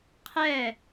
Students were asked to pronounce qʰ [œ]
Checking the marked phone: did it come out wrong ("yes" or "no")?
yes